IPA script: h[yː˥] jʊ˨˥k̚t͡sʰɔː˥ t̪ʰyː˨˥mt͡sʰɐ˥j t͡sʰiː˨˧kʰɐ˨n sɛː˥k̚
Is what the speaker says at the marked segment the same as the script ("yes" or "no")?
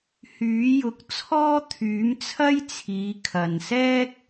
no